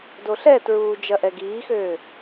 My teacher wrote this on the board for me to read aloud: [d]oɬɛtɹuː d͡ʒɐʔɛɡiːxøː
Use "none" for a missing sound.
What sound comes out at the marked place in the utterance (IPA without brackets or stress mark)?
d